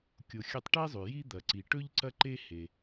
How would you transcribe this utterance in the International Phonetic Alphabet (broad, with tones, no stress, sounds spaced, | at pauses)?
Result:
kʲ o˧ xʲ ɐ˥ tˤ ʈ e˥ zˤ ʉ˩ j i˥ d̪ ɐ˩ ǀ i˩ ʈ ɵ˥ ʎ ǀ ɐ˥ ǃ e˥ h e˩